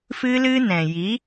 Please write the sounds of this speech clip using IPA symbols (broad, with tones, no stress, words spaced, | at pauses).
fɨ˦lɨ˦nɛ̃˨ ji˨˦